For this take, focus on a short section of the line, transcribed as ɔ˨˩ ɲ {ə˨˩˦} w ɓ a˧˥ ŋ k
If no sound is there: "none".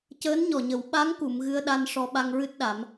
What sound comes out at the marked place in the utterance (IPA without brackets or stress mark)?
ə˨˩˦